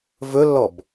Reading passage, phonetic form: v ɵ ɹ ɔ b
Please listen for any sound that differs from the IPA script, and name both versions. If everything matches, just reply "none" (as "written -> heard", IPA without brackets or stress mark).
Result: ɹ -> lː